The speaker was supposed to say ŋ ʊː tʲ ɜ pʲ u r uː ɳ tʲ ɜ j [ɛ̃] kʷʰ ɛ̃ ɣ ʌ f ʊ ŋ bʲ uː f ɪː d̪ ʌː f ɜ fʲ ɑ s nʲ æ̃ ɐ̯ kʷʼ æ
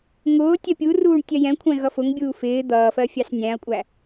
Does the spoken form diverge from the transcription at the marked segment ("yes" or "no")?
no